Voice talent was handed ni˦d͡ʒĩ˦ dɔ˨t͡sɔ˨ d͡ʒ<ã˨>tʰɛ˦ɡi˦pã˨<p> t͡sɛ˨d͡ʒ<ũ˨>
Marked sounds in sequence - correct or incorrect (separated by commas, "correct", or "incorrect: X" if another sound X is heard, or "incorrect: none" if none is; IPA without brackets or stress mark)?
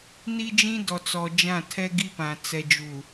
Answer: incorrect: ã˦˨, incorrect: none, incorrect: u˨